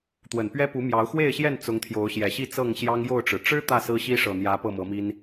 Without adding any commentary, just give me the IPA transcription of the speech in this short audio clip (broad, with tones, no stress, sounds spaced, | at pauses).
t̪ w ə˨˩ n p ɥ ɛ˦ p u˨˦ m j ɑ˨˦ ʊ̯ x w e˥˨ ɪ̯ ɕ j ɛ˥˨ n t͡s ʊ˨˦ ŋ t̪ʰ j o˨˦ ʊ̯ ɕ j ɛ˨˩ ɕ i˥˨ t͡s ɤ˥˨ ŋ ɕ j ɑ˦ ŋ j o˥˨ ʊ̯ ʈ͡ʂ ɻ̩˩ ʈ͡ʂ ɻ̩˦ t̪ ä˥˨ s ɹ̩˦ ɕ i˦ ʂ ɤ˨˩ n̪ j ä˨˦ p ɤ˥˨ m ɤ˨˦ m i˦ n